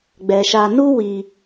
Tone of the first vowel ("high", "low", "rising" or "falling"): low